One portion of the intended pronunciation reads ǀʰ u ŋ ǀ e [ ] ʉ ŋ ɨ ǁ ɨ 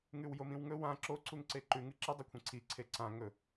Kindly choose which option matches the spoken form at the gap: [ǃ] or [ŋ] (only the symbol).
ǃ